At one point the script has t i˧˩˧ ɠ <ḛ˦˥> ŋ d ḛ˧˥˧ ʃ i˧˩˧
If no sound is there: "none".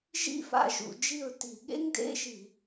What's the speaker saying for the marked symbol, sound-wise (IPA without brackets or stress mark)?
ḛ˦˥